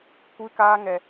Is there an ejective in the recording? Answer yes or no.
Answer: no